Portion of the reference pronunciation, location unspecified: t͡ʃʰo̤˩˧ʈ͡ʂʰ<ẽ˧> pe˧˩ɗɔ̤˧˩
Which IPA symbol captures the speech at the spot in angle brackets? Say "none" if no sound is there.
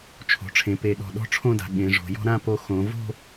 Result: ẽ˩˧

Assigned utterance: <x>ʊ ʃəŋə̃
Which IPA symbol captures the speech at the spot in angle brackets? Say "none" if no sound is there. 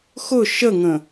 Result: x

